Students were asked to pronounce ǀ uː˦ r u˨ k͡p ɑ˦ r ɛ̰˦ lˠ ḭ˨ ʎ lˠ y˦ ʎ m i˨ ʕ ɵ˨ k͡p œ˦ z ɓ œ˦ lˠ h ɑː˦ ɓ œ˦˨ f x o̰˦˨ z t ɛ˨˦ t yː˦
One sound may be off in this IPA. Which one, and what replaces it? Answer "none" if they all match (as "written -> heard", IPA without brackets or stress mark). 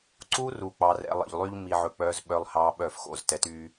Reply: none